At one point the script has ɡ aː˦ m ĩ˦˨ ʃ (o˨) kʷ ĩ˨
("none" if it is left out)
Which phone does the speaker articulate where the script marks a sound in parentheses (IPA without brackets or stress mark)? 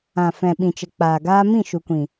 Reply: u˨